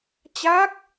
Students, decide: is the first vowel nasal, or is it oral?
oral